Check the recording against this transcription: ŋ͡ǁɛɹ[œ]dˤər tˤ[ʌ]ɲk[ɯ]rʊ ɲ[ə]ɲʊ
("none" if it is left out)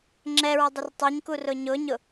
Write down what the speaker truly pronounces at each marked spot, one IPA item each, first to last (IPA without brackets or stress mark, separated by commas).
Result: œ, ʌ, u, ʊ